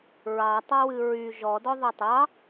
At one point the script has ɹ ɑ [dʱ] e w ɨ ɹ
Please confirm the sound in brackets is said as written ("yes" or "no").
no